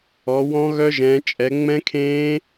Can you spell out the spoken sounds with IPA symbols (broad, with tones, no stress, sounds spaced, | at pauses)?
ɔ˨˦ w ɔ̃˦˥ ɣ œ˦˥ ʒ ɛ̃ː˨˦ t͡ʃʼ ɛ˨˦ ŋ͡m ɛ̃˦˥ kʰ ẽː˦˥